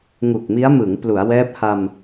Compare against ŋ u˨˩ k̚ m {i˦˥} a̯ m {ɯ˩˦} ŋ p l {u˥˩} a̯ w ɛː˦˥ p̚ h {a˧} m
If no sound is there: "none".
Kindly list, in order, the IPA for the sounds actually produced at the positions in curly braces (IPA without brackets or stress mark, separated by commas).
i˦˥, ɯ˩˦, u˩˦, a˧